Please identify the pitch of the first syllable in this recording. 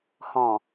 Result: low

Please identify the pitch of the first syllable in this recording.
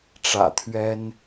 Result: low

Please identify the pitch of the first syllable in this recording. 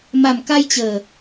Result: low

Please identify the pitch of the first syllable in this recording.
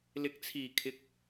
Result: low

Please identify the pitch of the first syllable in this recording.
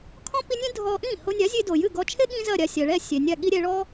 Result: high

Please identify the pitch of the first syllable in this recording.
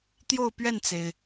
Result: falling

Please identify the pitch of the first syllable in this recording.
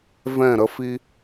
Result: falling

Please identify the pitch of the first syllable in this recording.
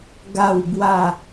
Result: falling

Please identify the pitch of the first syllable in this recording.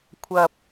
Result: low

